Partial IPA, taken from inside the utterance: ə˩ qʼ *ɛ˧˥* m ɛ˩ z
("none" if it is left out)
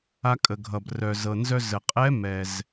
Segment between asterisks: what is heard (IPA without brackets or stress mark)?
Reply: ɛ˧˥